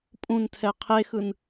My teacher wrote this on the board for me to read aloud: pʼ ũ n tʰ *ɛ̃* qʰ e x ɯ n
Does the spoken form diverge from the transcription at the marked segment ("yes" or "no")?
yes